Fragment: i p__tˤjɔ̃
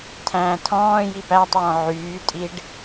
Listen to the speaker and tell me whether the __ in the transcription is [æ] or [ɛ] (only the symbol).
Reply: æ